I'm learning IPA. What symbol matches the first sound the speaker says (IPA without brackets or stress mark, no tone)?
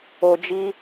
o